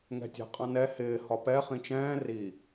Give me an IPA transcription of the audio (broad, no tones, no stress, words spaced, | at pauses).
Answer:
ŋɛ̤tʲɛ̤qʼɑ̃nɛ hɪː hɒpɛ χĩt͡ʃɛ̃ː ri